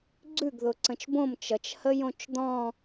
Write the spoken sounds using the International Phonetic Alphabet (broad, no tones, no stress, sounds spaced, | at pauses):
ɡ͡ǀ ʉ ɡ ð ʊ ǀ ə̃ t͡ʃ b õ m t͡ʃ ʌ t͡ʃ h ə j õ t͡ʃ d̪ ɔ̃